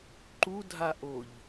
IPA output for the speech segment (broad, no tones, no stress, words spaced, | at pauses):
ǃudʱaʔoʎ